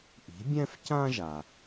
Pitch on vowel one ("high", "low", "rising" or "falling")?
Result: rising